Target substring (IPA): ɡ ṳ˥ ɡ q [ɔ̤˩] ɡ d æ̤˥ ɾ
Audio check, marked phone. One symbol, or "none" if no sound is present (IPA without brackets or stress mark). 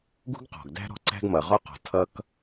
ɔ̤˩